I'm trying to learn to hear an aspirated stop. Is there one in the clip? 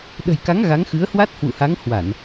no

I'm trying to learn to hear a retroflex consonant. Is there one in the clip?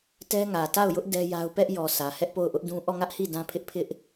no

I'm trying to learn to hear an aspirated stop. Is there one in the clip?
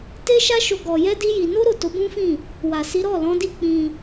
no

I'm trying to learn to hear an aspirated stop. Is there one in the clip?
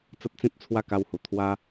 yes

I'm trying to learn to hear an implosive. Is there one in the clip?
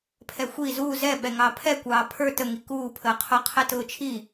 yes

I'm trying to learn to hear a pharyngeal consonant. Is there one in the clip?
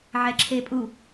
yes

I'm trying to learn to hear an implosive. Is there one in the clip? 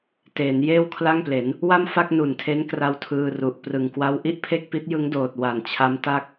no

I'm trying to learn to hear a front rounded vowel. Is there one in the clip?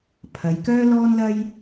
yes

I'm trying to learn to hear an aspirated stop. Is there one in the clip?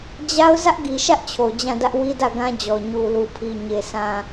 yes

